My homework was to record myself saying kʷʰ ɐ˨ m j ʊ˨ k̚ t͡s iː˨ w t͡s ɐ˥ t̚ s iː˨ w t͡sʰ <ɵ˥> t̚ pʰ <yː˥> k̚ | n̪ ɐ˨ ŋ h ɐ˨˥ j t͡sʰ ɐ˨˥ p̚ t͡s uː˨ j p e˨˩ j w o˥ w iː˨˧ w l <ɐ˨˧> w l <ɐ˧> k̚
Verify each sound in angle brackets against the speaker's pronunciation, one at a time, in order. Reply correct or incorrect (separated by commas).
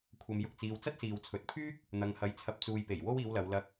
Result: incorrect, correct, correct, correct